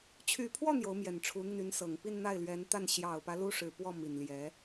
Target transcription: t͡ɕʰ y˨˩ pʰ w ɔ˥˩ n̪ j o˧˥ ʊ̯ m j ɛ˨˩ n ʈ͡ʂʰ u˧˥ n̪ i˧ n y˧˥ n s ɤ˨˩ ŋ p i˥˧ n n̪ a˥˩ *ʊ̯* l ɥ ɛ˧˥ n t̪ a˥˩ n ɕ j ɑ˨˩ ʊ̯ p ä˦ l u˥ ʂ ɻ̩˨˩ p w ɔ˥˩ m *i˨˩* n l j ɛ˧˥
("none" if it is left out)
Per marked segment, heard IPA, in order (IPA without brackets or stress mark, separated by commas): ɪ̯, i˨˩